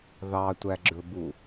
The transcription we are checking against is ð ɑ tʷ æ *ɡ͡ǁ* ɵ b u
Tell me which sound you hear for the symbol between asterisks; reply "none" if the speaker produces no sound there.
ɡ͡ǁ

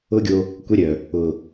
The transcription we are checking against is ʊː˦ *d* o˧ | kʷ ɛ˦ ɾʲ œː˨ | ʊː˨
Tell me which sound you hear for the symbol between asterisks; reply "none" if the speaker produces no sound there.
ɡʲ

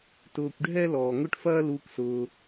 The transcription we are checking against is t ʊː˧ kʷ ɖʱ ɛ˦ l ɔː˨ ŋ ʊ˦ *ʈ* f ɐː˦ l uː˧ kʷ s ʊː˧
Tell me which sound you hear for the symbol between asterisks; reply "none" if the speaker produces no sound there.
ʈ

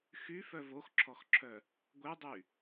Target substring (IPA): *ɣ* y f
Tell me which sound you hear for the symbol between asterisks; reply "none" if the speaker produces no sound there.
x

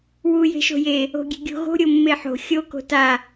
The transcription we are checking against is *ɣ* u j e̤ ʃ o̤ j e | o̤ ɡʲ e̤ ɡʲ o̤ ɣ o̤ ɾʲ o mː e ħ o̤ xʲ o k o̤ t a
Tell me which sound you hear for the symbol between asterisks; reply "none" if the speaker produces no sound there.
w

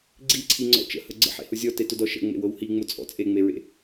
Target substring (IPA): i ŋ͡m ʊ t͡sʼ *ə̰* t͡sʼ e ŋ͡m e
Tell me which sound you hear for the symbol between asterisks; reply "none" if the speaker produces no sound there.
ɔ̰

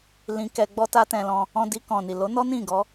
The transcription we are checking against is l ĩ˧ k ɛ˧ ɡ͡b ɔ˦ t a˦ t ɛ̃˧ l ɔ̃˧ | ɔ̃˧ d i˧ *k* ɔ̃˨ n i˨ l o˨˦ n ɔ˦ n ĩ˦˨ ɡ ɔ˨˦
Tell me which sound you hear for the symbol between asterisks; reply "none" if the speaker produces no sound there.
k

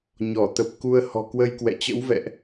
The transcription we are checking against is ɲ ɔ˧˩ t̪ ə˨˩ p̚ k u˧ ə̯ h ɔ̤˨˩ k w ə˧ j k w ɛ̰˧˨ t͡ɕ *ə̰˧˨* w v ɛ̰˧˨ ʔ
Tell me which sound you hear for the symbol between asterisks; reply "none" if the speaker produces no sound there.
ə̰˧˥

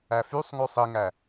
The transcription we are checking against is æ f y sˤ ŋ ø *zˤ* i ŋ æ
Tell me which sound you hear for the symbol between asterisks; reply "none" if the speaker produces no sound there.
sˤ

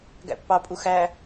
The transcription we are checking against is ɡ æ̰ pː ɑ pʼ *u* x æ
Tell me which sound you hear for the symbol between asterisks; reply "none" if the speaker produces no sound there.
u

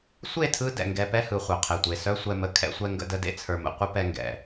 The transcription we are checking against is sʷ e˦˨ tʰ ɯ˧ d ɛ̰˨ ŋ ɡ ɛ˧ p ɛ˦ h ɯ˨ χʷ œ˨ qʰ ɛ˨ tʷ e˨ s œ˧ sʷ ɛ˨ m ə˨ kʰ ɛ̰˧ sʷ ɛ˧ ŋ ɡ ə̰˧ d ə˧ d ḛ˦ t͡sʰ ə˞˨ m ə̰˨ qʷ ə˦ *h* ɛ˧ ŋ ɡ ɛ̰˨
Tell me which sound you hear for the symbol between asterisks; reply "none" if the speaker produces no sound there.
p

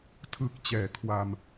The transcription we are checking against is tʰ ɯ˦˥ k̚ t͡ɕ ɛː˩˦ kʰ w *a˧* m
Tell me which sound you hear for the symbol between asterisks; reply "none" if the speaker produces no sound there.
a˧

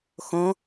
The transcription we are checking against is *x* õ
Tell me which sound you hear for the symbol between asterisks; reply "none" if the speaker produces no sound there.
x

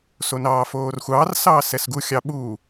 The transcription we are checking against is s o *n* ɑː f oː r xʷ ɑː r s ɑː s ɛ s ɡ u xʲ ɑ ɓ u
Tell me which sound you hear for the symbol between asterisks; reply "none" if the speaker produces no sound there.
n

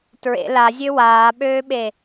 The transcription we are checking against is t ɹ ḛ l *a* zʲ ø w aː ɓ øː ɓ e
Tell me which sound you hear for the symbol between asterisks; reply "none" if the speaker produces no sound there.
a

